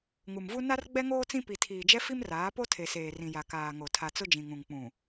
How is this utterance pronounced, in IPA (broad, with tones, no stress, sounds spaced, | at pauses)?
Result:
ŋ u˨ m v u˦ n a˦ r ɡ͡b ɛ˦ ŋ oː˦ t͡s ĩ˦ p i˨ tʰ iː˨ d͡ʒ ɛ˦ f i˦ m r aː˨˦ p o˦ tʰ e˨ s eː˨ r ĩ˨ j a˨ k aː˨ ŋ o˨ tʰ a˨ t͡s ʊ˦ d͡ʒ ĩ˨ ŋ ũ˨ ŋ k͡p ũ˨